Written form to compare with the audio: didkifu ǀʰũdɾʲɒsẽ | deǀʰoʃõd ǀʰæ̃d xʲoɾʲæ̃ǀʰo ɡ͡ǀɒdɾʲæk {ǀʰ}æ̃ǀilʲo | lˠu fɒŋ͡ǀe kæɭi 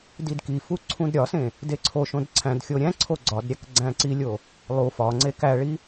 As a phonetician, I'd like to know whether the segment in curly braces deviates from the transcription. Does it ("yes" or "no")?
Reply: yes